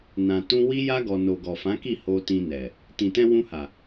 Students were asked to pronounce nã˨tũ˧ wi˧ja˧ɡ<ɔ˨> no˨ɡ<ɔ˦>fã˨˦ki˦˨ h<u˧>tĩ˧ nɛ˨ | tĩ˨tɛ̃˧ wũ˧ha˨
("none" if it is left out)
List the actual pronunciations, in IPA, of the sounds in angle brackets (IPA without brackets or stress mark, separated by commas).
ɔ˨, ɔ˨, o˧